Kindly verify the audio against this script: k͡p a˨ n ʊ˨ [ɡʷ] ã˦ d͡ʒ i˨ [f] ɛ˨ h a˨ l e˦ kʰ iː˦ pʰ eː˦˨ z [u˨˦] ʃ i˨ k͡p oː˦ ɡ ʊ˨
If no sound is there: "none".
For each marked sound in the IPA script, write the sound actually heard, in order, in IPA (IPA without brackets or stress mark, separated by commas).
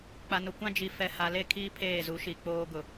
kʷ, f, u˨˦